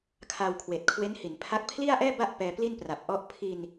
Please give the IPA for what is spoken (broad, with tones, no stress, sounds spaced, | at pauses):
kʰ a˧ w kʰ w eː˨˩ t̚ kʰ w e˦˥ n h i˩˦ n pʰ a˦˥ k̚ pʰ l i˥˩ a̯ ʔ ɛː˥˩ b a˥˩ ʔ p ɛː˧ p l i˥˩ n p r a˨˩ p̚ ʔ ɔ˦˥ ʔ pʰ i˧ n